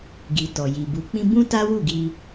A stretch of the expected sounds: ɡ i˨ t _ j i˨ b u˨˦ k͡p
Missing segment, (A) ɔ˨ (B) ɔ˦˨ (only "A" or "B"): A